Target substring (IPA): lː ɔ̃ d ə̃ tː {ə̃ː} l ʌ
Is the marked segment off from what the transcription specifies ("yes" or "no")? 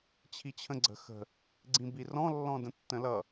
yes